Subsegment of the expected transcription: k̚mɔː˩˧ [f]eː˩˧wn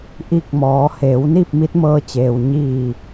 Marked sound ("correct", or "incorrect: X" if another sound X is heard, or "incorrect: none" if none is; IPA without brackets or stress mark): incorrect: h